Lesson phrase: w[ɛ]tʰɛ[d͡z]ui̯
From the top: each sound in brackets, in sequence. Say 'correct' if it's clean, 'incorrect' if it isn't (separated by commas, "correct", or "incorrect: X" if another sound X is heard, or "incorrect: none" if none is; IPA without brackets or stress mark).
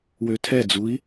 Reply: incorrect: ø, correct